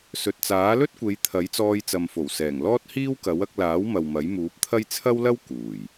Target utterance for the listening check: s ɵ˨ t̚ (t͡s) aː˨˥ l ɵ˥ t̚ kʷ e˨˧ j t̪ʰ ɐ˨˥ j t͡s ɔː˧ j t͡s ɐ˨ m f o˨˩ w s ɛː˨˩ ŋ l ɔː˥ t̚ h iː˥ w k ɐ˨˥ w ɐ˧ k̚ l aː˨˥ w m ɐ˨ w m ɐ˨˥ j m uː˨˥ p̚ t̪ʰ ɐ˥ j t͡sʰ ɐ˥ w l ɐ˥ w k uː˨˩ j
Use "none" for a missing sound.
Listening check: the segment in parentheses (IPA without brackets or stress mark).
t͡s